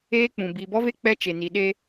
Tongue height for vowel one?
mid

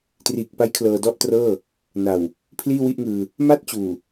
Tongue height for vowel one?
high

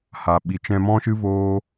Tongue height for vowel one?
low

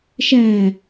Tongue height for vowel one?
low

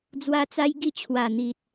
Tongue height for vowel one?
low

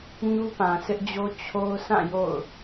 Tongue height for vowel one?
high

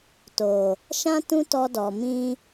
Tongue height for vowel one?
mid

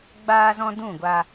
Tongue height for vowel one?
low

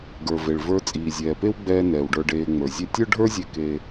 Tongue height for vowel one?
mid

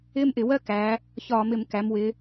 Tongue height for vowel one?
high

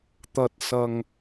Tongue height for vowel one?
low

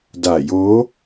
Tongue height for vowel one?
low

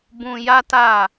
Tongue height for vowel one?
high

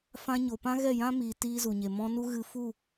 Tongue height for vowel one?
low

